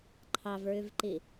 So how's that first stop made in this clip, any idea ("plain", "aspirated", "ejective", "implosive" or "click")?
click